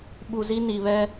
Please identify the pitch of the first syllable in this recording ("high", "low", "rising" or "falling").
low